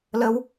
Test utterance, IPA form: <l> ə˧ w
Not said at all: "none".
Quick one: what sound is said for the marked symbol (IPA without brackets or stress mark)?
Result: l